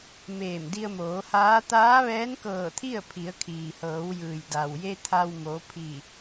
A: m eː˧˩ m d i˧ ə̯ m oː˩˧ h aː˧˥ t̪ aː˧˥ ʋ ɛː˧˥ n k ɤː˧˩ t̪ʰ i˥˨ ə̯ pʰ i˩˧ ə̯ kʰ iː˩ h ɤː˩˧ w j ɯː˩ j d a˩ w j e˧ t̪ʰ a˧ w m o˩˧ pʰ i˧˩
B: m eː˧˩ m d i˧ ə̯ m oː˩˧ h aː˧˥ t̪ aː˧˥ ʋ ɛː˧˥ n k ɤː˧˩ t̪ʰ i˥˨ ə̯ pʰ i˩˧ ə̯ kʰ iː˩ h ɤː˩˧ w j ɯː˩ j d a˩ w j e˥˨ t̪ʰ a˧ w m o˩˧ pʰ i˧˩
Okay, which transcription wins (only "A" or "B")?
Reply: A